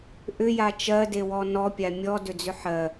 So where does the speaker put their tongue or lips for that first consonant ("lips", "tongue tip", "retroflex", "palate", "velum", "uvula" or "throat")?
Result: throat